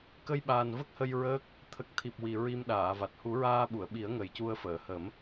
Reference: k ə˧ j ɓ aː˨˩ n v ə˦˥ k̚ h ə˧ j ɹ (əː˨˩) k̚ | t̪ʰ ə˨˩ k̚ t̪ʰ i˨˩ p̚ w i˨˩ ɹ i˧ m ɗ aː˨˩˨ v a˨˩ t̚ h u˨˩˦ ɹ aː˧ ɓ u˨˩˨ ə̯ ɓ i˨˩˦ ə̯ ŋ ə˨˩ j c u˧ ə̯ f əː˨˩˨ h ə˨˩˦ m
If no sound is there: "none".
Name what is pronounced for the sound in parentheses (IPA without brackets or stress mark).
əː˦˥